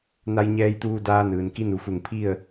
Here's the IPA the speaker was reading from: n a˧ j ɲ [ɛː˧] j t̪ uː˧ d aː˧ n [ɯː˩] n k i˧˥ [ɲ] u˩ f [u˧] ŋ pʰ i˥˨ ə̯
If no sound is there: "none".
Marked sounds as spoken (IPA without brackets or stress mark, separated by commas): ɛː˧, ɯː˩, n, u˧˩